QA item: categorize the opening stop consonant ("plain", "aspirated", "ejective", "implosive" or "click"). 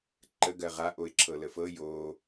click